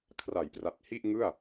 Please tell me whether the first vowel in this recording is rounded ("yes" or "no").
no